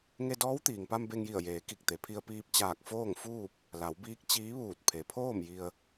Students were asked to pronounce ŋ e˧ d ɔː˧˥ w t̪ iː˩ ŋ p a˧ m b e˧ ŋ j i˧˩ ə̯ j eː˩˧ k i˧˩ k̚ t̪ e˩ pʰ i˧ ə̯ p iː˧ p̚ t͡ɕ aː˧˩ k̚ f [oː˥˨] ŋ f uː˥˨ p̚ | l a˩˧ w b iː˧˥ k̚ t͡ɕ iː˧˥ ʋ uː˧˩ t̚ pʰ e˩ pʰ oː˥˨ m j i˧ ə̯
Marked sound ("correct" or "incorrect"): correct